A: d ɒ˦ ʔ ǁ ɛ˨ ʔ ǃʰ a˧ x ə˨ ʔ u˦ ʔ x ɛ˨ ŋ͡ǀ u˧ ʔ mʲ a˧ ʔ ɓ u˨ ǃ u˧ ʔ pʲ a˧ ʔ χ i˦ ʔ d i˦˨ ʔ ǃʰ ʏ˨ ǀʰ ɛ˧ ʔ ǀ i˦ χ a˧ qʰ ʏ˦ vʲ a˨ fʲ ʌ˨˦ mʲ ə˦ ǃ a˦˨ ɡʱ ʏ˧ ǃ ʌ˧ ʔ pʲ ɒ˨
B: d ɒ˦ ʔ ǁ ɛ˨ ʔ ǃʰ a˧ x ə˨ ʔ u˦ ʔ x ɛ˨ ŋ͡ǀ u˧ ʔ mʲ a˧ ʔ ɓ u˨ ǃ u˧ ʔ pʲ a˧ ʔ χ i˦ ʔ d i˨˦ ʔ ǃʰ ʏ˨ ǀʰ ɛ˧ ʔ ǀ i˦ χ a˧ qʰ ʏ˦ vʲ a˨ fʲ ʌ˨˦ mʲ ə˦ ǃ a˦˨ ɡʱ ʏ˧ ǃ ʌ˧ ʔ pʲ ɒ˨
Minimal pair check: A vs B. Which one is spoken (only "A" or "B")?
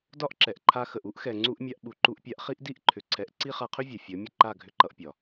A